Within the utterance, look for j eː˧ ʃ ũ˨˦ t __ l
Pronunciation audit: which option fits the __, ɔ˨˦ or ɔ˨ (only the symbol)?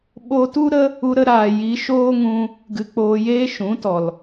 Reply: ɔ˨